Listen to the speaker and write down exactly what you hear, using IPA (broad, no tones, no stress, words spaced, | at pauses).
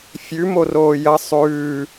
fʲʉmoroː jɐ sˤʉː